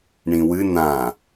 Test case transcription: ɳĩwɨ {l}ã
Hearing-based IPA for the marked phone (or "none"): n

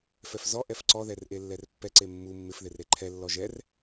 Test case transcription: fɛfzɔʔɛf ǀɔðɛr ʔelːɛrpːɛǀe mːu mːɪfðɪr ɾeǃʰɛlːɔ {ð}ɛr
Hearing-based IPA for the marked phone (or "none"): ʒ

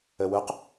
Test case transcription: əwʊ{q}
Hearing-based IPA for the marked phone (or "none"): q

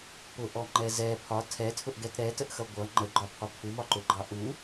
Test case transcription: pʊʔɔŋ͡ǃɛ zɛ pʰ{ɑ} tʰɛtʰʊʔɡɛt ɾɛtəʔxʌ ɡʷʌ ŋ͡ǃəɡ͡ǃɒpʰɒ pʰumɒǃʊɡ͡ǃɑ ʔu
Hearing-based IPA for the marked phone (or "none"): ɒ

